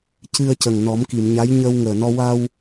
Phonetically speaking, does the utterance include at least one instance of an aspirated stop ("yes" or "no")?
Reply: no